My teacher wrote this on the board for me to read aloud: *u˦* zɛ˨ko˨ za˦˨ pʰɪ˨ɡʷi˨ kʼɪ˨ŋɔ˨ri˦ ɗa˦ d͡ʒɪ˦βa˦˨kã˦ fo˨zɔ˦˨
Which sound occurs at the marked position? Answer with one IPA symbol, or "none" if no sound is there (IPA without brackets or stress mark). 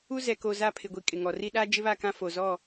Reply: u˦